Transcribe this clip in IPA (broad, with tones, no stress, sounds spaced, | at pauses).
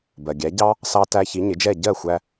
b ɜ˩ ɡʲ æ˩˥ ɟ ɑ˥ | s ɑ˧ t æ˧ ç i˩˥ ɲ ɪ˩˥ d͡ʒ ɛ˥˩ ɟ ɜ˥˩ xʷ æ˧